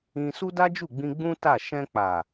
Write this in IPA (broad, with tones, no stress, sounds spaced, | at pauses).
ĩ˧ s u˦ d a˦ d͡ʒ u˦˨ ɡ͡b ĩ˧ ɡ͡b ũ˦ t a˦˨ ʃ ɛ̃˧ k͡p a˨